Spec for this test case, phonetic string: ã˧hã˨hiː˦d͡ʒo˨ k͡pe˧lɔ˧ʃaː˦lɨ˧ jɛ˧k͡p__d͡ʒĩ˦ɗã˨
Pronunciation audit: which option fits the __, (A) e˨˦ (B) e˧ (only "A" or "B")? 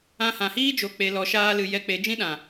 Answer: A